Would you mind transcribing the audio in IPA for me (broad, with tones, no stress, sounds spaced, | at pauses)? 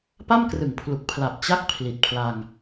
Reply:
p a˥˩ m k r ɯ˩˦ ŋ pʰ l u˨˩ k̚ pʰ l a˨˩ p̚ t͡ɕ a˦˥ k̚ pʰ l i˨˩ t̚ pʰ l a˧ ŋ